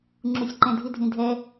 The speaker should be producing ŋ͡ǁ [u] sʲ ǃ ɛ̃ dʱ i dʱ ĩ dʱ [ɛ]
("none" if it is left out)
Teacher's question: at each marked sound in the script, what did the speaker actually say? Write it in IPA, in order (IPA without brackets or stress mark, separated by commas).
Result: u, ɛ